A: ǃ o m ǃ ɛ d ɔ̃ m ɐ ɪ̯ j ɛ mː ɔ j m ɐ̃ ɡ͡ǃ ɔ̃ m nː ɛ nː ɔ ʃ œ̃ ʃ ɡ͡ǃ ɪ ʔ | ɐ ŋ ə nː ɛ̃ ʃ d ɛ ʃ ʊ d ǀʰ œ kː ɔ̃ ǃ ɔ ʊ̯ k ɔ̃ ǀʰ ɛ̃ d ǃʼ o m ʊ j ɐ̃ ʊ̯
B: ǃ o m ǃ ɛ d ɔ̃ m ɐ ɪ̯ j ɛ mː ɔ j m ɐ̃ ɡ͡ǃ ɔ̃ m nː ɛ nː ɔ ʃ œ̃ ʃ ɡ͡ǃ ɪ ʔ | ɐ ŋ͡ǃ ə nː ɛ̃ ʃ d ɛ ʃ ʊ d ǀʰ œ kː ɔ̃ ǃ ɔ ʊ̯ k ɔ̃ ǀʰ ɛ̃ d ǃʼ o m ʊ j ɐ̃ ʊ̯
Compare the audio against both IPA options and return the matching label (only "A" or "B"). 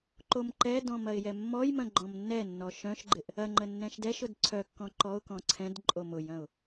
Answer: B